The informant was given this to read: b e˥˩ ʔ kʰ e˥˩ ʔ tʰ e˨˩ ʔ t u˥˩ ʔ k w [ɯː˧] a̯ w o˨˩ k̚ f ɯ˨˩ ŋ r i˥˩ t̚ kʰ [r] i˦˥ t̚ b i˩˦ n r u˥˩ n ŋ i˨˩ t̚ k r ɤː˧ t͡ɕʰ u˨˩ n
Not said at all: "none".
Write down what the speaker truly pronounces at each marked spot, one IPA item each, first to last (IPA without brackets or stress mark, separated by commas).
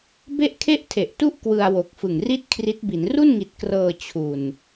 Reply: ɯ˧, r